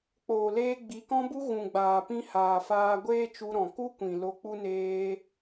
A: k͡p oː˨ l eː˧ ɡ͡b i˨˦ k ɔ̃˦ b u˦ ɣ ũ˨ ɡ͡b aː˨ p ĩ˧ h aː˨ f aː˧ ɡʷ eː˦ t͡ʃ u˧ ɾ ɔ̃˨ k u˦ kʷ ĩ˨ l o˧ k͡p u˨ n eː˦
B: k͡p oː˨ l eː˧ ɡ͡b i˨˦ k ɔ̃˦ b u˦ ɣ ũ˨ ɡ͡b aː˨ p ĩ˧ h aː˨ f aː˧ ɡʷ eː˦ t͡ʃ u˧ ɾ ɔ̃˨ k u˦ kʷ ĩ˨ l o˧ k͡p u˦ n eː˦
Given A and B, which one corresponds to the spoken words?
B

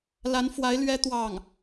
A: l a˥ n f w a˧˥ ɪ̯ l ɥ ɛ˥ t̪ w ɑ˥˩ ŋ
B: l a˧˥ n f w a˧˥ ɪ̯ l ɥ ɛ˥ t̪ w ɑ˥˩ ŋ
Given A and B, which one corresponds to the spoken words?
B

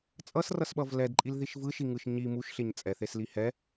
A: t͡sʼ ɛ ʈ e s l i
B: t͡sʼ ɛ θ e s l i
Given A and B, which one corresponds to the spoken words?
B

